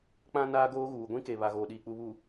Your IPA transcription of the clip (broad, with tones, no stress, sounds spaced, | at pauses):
k͡p ã˦ n aː˦ ɡ oː˦ ɣ uː˨ ɡʷ ĩ˦ k e˨ β a˨ ɣ oː˨ ɗ iː˨ k͡p u˨ β u˨